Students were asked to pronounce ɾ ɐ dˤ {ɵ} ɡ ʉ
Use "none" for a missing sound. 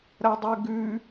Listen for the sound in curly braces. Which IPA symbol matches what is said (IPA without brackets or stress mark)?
ɵ